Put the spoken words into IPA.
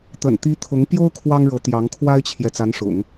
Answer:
t̪ ə̰˨˩ n t̪ i˧˥ t̪ʰ ʊ˧˥ ŋ p j o˥ ʊ̯ kʰ w ɑ˥ ŋ ɻ ɤ˧˥ t̪ j ɑ˧˥ ŋ kʰ w a˥ ɪ̯ t͡ɕʰ j ɛ˨ t͡s a˧˥ n ʂ ʊ̰˨˩˦ ŋ

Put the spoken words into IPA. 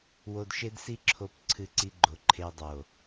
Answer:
w o˧ d ʃ e˦ d s i˦ ǁʰ o˧ p ǀʰ ɨ˧ ǀ i˧ ɡ͡ǃ o˨ ǃʰ e˧ dˤ o˨

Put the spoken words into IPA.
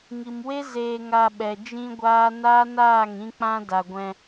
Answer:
ŋ i˨ m w e˦ z eː˧ ŋ a˧ ɓ ɛ˨ d͡ʒ ĩ˦ ɡʷ aː˦ n aː˦ n aː˦˨ ŋ ĩ˧ k͡p ã˦ d a˨ ɡʷ ɛ̃˧

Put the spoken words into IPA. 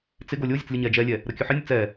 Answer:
t͡s ɪ ɡ o lʲ o zʲ ə t͡s lʲ ə ɲ ɛ d͡ʒ ɛ lʲ ɛ | ɾ ə kʲ ɵ ħ ɪ nʲ ə t͡s ɛ

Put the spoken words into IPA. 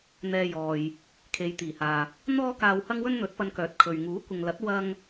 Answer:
n̪ ɛː˧ j ɔː˨ j | kʰ e˨ j t̪ iː˨˩ h aː˨ | n̪ ɔː˥ k aː˧ w h ɐ˥ ŋ w ɵ˥ n n̪ ɵ˨˥ t̚ p ɐ˧ n k œː˨˥ t̚ kʰ ɵ˨ ɥ ŋ uː˨˥ kʷ ɪ˨ ŋ l ɐ˨˥ t̚ w ɐ˥ ŋ

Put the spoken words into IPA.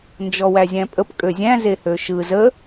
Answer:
n d͡ʒ ɔ w æ zʲ æ̃ pʼ ə p kʼ ø zʲ æ̃ z e h ø ʃ ɯ z ə

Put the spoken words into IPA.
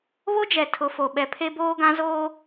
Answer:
β o˦ d͡ʒ ɛ˨ tʰ ʊ˨˦ f o˨ ɓ ɛ˨ pʰ e˦ b oː˦ ɡ ã˦ z oː˦

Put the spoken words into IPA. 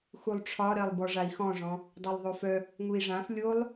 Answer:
x u lˠ ʈ͡ʂʰ ɒ ɾ ɜ lˠ b ɔ ʐ a i̯ x ɔ̃ ʐ ɔ̃ | dˤ ɜ lˠ ðˤ o f œ | ŋ u i̯ ʐ ã f lʲ o lˠ

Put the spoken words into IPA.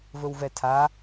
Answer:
v ɵ w v ɛ tʰ a

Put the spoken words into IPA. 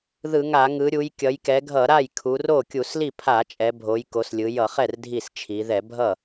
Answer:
ð ɯ˧˩˧ ŋ a˧˩˧ ŋ ɯ˩˧ ɾʲ u˩˧ j kʲ ʌ˩˧ j k ɛ˩˧ ɡʱ ʌ˧˩˧ ɾ a˥˩ j kʰ u˩˧ r o˥˩ kʲ u˧˩˧ s l i˥˩ pʰ a˧˩˧ t͡ʃʼ ɛ˩˧ bʱ o˩˧ j k o˩˧ s lʲ ɯ˩˧ j ʌ˧˩˧ χ ɛ˥˩ r dʱ i˥˩ s t͡ʃʰ i˩˧ ð ɛ˧˩˧ bʱ ʌ˥˩

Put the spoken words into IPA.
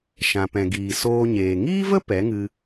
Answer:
ʃ ã˨ p ɛ̃˨ ɡ iː˨ s oː˧ ɲ eː˨ ŋ iː˦ v ə˦ p ɛ˨˦ ŋ ɨ˧

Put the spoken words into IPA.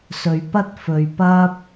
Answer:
s ɵ˨ ɥ p ɐ˥ t̚ f ɵ˧ ɥ p ɐ˥ p̚

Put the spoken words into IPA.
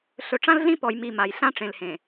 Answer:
ɬ ɵ˨ ʈ͡ʂ ã˦ l ɮ ĩ˦ p ɔ˨ j m i˨ m a˨ j ɬ ã˦ ʈ͡ʂ ẽ˨ l h ẽ˨

